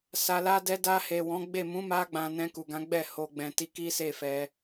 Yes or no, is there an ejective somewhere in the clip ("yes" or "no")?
no